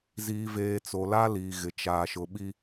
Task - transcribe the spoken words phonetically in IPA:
z iː˨ v eː˨ t͡s o˨ l a˦ l iː˨ ɣ ɪ˨ t͡ʃ aː˨ ʃ ʊ˨ ɓ i˦

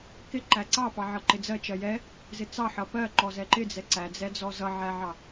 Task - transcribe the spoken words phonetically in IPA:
k ɪ ǃ æ ǀ ɑ p ɑ ʕ ʌ ǃ ɪ d͡z ɜ t͡ʃ ɜ j ɛ | z ɪ t͡s ɑ ħ ʌ p ɜ ǃ ɔ z ɛ ǃ ɪ d͡z ɛ ǀ æ d͡z ɛ d͡z ɔ z ʌ ʕ æ ʕ ɑ

